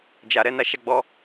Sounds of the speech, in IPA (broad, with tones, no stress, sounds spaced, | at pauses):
d͡ʒ a˨ ɾ ɛ˧ n a˧ ʃ a˧ ɡ͡b ɔ˧